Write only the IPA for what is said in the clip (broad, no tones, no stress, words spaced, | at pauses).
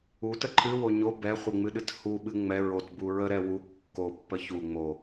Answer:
utə ǃʰɨwo ɲo bɛχʷɨŋ͡mɨɗɨt huɓɨ ŋ͡mɛ ɹotbu ɹəɾɛ wu kːopːə çu ŋ͡mo